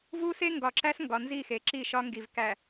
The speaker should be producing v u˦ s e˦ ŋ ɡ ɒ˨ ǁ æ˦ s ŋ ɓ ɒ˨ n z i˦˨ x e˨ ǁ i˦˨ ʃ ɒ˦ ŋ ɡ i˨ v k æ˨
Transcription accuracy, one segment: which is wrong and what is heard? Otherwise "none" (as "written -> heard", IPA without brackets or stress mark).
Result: ɓ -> ɡ